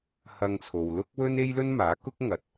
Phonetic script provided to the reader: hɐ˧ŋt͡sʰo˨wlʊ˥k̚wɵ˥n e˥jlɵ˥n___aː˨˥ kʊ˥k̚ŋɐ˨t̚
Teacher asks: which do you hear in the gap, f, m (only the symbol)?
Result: m